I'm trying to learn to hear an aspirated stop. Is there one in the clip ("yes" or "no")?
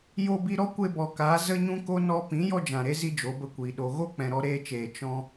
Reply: no